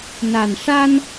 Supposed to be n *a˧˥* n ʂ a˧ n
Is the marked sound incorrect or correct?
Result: incorrect